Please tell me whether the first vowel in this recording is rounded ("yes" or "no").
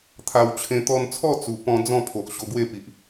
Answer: no